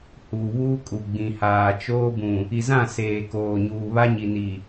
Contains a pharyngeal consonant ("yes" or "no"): no